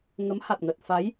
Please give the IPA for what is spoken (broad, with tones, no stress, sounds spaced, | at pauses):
ŋ ə˨˦ m h a˨˩ t̚ ŋ ə˨˩ t̚ f a˨˦ j